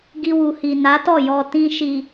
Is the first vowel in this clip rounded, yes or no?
no